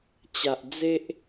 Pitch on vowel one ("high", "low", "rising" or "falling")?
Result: low